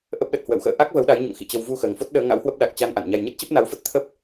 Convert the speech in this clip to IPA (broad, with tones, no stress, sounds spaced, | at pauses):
ʔ ə˦˥ p̚ ɗ ə˨˩ t̚ h w ə̰˧˨ w x ə̰ː˧˨ ʔ a˦˥ k̚ v ə˨˦ w ɗ a˨˦ j ɲ o̰˧˨ ŋ x ḭ˧˨ t͡ɕ ə˧ w v u˧ x əː˨˩ ŋ f o˦˥ t̚ ɗ əː˨˦ ŋ a̰˧˥ w h w ə˦˥ p̚ ɗ a˨˩ k̚ t͡ɕ a˧ n ʔ a̰˧˨ n ɲ a˧ j ɲ ə˦˥ t̚ t͡ɕ ə˦˥ p̚ n a˨˦ w f ə˦˥ t̚ t̪ʰ ə˦˥ p̚